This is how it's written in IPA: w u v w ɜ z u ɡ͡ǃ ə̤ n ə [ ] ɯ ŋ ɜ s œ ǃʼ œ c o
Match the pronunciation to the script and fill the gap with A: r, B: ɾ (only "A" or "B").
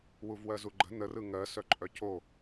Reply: A